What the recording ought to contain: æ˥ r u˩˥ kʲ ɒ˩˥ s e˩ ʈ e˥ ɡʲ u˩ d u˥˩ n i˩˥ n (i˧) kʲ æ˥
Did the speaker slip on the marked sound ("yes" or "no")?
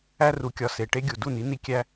no